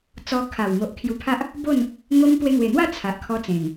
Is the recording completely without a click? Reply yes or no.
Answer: yes